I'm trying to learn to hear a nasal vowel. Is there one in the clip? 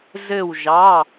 no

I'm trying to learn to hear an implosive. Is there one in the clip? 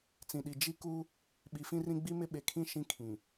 yes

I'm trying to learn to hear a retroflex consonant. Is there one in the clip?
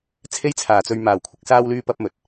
no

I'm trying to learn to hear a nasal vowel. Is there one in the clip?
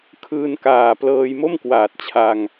no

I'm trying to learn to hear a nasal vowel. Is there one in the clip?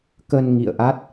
no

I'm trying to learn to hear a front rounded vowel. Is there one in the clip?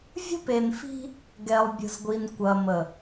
no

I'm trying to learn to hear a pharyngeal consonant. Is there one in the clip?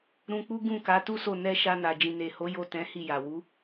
no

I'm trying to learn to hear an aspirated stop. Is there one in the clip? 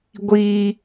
no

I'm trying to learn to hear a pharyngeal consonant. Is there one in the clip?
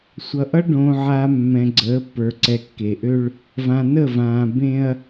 yes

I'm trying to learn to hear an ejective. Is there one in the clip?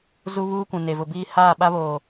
no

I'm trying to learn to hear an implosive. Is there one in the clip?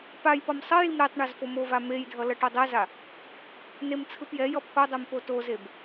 no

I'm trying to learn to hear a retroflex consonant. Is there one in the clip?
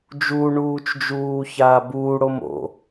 yes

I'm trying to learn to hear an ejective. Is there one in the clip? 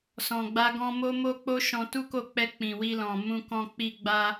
no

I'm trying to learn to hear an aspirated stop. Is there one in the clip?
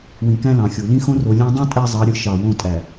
no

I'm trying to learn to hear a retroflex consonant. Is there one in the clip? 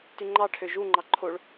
yes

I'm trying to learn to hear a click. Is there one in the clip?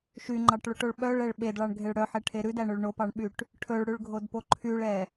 yes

